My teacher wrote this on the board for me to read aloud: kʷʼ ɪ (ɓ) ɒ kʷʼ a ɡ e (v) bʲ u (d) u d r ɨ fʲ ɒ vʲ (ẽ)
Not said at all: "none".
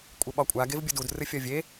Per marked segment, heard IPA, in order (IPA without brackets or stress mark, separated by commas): ɓ, v, d, e